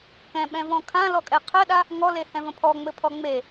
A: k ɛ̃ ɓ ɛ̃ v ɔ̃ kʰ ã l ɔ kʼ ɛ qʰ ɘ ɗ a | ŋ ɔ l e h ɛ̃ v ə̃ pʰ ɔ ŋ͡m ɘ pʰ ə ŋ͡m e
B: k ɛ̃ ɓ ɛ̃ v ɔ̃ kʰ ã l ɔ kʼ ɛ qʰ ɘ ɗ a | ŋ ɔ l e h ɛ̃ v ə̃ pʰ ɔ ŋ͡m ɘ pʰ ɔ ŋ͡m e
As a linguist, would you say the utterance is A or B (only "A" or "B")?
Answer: B